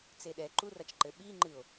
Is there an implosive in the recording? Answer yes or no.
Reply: yes